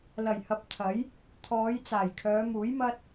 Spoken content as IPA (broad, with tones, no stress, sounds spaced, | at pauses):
l ɐ˨˩ j h ɐ˨˥ p̚ t̪ʰ ɐ˨˥ j | t̪ʰ ɔː˨˧ j t͡s aː˨˩ j kʰ œː˨˧ m uː˨˥ j m ɐ˥ t̚